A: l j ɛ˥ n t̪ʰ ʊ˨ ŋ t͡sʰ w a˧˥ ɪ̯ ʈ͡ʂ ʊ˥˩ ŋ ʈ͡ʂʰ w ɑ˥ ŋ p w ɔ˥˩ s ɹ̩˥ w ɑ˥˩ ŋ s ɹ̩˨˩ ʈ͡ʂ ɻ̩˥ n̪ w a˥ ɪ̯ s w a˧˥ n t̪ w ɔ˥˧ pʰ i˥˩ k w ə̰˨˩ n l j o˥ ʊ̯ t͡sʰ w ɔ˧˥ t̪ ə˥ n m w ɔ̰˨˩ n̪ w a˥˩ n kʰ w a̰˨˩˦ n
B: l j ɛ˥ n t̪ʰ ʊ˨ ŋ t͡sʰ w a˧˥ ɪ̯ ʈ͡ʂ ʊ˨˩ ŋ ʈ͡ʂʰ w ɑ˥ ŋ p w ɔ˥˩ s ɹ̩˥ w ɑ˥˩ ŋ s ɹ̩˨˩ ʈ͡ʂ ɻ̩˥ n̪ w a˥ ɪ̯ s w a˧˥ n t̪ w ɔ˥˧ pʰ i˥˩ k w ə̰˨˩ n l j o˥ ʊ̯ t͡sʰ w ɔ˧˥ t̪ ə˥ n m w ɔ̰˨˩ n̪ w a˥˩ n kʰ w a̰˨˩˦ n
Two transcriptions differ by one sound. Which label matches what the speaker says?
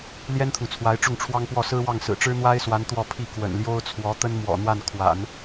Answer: A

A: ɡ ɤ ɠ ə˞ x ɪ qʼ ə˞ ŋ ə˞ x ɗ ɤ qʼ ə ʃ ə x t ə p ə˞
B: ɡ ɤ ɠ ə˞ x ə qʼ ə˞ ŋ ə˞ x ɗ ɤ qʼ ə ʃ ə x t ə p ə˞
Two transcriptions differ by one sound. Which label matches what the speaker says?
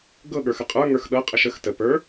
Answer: B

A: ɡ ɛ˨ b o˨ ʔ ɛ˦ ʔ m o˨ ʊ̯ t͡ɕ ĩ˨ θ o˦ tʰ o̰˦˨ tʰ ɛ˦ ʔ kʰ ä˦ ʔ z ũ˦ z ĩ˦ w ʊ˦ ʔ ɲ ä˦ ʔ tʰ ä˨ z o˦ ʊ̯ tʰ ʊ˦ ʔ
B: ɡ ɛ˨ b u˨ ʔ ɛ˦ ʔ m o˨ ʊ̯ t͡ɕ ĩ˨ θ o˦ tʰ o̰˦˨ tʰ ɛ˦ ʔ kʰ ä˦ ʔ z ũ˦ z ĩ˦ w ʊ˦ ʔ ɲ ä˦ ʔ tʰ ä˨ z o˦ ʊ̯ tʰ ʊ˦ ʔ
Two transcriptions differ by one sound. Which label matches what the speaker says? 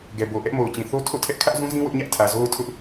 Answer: A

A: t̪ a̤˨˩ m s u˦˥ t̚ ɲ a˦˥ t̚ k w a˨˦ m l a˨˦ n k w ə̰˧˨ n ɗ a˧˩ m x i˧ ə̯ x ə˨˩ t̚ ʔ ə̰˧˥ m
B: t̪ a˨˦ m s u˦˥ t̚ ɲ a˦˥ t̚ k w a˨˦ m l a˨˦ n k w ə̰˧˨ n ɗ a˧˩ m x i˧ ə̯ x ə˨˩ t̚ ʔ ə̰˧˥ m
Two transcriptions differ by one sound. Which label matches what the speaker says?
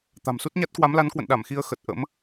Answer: A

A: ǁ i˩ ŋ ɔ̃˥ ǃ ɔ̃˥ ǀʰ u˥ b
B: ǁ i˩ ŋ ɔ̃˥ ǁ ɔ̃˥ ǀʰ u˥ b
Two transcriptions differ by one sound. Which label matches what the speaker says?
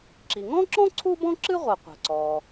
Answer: B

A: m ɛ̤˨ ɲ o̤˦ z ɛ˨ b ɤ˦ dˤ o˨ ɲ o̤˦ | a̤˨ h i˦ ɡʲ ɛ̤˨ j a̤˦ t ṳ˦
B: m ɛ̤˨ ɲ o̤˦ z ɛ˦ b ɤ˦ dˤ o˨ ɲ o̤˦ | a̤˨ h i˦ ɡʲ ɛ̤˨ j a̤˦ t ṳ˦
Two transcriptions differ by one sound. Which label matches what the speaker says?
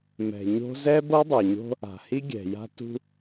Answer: B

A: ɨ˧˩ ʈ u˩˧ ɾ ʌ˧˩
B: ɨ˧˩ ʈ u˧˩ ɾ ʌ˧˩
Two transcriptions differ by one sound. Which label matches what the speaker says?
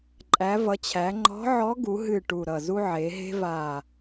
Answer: B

